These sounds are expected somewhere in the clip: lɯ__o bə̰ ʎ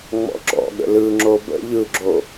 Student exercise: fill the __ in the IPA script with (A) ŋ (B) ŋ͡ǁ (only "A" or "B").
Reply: B